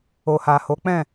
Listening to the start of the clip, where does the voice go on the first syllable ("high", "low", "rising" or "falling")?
low